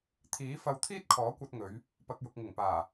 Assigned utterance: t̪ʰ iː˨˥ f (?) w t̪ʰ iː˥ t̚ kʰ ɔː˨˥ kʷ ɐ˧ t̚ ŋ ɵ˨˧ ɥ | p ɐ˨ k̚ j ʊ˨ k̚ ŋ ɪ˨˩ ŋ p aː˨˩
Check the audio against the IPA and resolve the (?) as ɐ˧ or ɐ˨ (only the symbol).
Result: ɐ˧